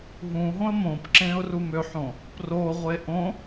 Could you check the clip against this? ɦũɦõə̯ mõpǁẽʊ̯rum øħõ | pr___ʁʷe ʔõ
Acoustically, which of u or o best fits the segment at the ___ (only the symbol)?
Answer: o